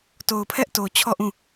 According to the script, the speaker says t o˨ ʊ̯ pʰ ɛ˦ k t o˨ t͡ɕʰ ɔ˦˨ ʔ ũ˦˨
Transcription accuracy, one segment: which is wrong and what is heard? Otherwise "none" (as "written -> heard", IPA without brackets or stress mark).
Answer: k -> ʔ